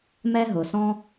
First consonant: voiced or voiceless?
voiced